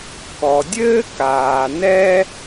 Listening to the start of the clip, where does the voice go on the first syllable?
low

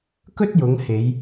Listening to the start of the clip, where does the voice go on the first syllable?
high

